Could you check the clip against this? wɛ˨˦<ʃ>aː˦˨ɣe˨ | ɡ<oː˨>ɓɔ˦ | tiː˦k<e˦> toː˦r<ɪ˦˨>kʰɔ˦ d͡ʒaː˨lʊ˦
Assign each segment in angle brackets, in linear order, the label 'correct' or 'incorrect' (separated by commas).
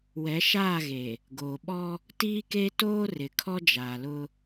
correct, correct, correct, incorrect